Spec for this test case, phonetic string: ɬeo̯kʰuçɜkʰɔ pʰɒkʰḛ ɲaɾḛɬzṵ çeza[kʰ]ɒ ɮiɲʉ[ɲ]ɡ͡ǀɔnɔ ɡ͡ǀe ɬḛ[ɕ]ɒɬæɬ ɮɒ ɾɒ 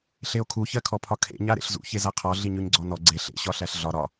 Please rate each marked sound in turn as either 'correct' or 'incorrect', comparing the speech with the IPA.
incorrect: qʰ, correct, correct

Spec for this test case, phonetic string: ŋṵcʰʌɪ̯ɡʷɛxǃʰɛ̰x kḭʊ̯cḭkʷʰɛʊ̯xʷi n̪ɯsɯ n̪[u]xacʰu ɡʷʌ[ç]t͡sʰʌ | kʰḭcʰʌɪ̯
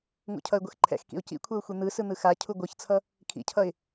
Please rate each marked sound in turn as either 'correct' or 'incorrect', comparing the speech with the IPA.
incorrect: ɯ, correct

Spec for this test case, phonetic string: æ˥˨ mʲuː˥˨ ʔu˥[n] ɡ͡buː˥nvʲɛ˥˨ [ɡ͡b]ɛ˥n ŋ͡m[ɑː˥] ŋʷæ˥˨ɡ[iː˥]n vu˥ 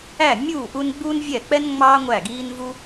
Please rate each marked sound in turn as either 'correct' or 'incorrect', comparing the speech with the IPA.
correct, incorrect: k͡p, correct, correct

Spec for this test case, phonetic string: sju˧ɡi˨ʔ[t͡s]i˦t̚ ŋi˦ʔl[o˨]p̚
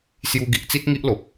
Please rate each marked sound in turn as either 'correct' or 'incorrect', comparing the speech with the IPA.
correct, correct

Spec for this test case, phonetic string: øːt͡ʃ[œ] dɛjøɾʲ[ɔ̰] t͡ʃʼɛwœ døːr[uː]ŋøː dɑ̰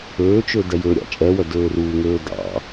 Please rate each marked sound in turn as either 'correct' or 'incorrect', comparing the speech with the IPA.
incorrect: ø, incorrect: ɑ̰, correct

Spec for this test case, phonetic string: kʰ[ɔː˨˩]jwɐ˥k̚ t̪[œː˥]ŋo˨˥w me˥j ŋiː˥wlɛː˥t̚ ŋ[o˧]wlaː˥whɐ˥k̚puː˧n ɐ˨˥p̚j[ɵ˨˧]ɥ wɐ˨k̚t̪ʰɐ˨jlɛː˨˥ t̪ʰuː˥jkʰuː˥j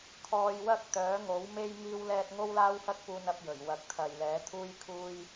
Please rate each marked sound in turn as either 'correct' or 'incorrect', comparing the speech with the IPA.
incorrect: ɔː˧, incorrect: œː˨˥, incorrect: o˥, incorrect: ɵ˨˩

